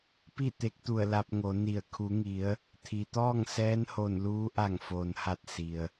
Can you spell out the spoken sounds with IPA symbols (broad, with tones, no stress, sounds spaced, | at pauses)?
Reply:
p i˥˨ t̪ e˧˥ k̚ t̪ u˧˩ ə̯ l a˧ p̚ ŋ o˩˧ n i˧˩ ə̯ kʰ u˩˧ ŋ i˩˧ ə̯ | t̪ʰ i˩ t̪ ɔː˥˨ ŋ s ɛː˧˥ n h o˧˩ n l uː˧˥ ʔ a˧˩ ŋ f oː˩ n h a˧˩ t̚ s i˩ ə̯